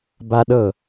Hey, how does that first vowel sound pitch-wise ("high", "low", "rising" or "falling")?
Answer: high